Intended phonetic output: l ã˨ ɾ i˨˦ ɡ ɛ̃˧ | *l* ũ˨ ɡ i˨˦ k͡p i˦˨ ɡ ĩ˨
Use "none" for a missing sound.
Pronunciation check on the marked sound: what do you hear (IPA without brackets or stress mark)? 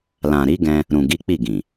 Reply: ɾ